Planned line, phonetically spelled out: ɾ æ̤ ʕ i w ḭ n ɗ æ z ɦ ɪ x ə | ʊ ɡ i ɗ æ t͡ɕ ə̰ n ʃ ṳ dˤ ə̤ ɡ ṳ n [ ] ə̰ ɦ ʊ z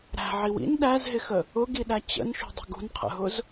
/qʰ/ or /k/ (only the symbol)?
qʰ